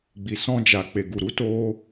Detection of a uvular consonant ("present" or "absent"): absent